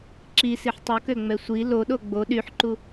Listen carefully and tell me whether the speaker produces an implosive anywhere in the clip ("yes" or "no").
yes